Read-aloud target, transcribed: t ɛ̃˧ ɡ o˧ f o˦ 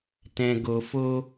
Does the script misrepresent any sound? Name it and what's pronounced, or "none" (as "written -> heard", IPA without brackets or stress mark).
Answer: none